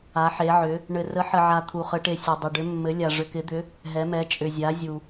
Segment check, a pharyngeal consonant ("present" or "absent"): present